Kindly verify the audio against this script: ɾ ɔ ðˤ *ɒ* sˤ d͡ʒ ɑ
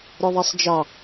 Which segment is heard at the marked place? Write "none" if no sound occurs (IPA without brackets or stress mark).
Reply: ɑ